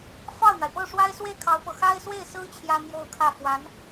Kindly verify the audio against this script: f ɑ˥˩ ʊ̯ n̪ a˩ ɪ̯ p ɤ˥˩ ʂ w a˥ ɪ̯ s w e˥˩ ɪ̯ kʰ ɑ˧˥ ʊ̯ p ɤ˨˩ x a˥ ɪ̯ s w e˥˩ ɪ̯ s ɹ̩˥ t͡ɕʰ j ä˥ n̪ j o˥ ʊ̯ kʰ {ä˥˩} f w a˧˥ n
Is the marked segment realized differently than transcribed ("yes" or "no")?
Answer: no